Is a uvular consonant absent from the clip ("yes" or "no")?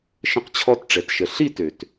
no